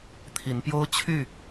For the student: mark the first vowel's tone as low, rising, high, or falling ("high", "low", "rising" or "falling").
rising